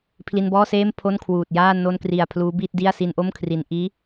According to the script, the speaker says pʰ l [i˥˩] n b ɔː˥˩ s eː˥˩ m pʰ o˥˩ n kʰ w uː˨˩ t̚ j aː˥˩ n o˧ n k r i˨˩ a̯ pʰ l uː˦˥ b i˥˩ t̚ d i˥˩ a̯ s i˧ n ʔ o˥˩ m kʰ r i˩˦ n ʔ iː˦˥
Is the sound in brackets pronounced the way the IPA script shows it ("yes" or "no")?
no